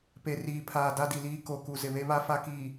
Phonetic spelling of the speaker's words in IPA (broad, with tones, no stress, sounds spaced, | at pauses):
p e˨ r iː˨ pʰ aː˨ d a˦ d i˨ l iː˦ k o˨ k u˨ z ɪ˨ β e˦ β a˦ f a˦ k iː˨